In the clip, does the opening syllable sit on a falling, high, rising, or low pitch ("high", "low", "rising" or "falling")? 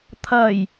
low